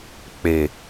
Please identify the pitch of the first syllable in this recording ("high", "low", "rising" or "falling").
low